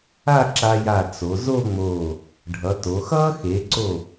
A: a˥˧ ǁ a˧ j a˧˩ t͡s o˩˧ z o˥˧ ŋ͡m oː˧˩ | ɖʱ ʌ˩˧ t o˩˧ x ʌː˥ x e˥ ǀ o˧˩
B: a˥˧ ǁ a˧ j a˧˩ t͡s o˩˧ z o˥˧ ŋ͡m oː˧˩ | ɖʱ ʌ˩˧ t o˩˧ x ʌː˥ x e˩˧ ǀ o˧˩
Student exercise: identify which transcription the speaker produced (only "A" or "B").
B